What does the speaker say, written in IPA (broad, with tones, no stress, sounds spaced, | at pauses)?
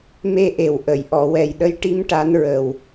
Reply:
m e˧ ʔ e˨˩ w ʔ ə˨˩˨ j ʔ ɔ˨˩˨ w ɛ˨˩ j ɗ ə˧˥ j ʈ i˧˥ m ʈ a˧˥ n ɹ ə˨˩ w